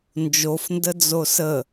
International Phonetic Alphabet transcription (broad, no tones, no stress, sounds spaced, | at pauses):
n d͡ʒ o f n d ə d͡z o s ə